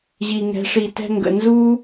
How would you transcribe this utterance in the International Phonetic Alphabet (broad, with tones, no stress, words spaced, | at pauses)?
ʑi˨ŋɛ̤˨˦ʂi˨ tɛ̤˧ŋɡə̰˨ nzu˦